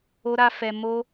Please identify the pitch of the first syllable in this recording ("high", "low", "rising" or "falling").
high